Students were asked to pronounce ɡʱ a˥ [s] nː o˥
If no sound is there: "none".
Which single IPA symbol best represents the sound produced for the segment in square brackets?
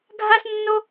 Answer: s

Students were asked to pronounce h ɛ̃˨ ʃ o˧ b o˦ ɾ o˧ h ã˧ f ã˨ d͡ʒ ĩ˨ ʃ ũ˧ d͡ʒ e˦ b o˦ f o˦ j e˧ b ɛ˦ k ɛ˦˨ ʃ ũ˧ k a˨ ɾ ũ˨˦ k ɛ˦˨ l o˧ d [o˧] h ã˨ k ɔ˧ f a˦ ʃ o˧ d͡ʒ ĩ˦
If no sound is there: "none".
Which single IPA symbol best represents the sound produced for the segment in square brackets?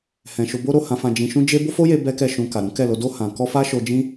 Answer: o˧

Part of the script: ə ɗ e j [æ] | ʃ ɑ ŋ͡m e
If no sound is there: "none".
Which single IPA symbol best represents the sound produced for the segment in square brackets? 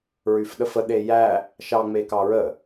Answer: æ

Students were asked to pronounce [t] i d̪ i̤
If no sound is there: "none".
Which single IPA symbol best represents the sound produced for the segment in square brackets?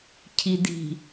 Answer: cʰ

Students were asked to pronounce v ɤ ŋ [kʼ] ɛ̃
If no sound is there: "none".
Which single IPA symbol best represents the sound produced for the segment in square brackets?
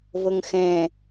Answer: x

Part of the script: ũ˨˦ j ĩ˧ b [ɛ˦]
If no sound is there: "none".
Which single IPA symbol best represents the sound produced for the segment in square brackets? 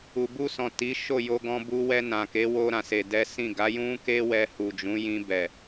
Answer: ɛ˨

